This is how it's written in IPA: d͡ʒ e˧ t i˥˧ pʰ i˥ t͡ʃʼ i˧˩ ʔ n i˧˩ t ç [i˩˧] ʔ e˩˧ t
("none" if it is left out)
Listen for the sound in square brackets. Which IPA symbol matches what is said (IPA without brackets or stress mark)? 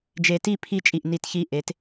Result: i˧